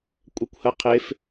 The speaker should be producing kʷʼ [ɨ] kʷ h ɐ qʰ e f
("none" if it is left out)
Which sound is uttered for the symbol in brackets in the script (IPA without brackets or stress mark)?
ɛ